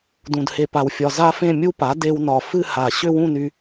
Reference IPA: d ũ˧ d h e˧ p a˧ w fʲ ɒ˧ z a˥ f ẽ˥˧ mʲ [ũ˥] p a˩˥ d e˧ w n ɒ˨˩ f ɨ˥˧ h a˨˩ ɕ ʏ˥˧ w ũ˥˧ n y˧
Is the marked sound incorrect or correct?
incorrect